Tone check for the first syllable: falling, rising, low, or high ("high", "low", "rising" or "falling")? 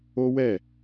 high